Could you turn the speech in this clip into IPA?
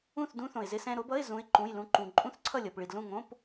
ũ˥˨ θ d ũ˦˥ θ õ˨ ɪ̯ z ɪ˦˥ s ɛ̃˧˥˧ ɾ o˦˥ b ʌ˧˥˧ ɪ̯ z ũ˦˥ ɪ̯ ǃ ũ˧˥˧ j l ũ˦˥ ǃ ũ˨ ǃʼ ũ˦˥ θ ǀʰ ʌ˥˨ lʲ ʌ˨ p ɭ i˨ d l ũ˥˨ ŋ õ˧˥˧ p

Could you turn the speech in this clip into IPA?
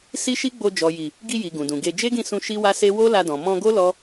s i˦ ʃ i˦ ɡ͡b o˧ d͡ʒ ɔ˨ j i˨ | ɡ i˧ j i˨ ɡ ũ˨ d ũ˨ ɡ e˧ d͡ʒ e˦ ɡ ĩ˦˨ s ũ˧ ʃ i˦ w a˦ s e˦ w o˦ l a˧ d ɔ̃˨ m ɔ̃˧ ɡ o˦ l ɔ˦

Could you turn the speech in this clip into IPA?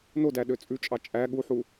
n o d æ ɗ ø t͡sʼ ʉ t͡ʃʼ ɑ t͡ʃʼ æ ɠ u ħ u

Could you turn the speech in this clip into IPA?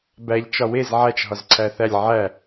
b æ ʎ t͡ʃ ɒ w e z ʕ æ t͡ʃ ɦ ɒ z ǀʰ æ θ æ lʲ ʕ æ

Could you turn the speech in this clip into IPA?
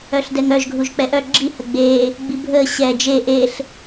œ ɬ d ɛ ŋ œ ʒ ɡʱ u ʒ k͡p ɛ ʔ œ ɡ͡ǁ i h ə ɡ͡b eː | ɡ͡b i bʱ əː ɕ ɛ d͡ʒ e ʔ e ɬ

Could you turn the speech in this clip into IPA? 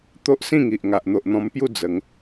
t̪ o˦ ʔ s ĩ˥˧ ŋ i˨ ʔ ŋ a˨ ʔ n̪ o˨ ʔ n̪ ɔ̃˧ m p j u˥˧ d͡z ə˨˦ ŋ

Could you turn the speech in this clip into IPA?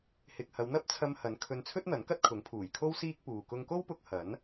h ɪ˨ k̚ h ɐ˨˧ w n̪ ɐ˥ p̚ t͡sʰ ɐ˧ m h ɐ˨˥ n kʰ ɵ˧ n t͡sʰ ɵ˥ t̚ n̪ ɐ˨˥ n k ɐ˥ t̚ kʰ ʊ˨˥ ŋ pʰ uː˨˩ j kʰ o˥ w s iː˥ k̚ p uː˨ k ʊ˧ ŋ k o˥ w p ʊ˧ k̚ h ɐ˨˥ n

